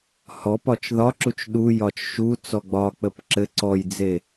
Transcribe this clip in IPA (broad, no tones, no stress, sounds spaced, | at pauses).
h ɔ p ɒ t͡ʃ ð ɒ ǁ u t͡ʃ ɗ u j ɒ t͡ʃ ʃ u t͡s ɔ ɡ͡b ɒ k͡p ə p ǁ ɘ ǀ ɔ j d͡z e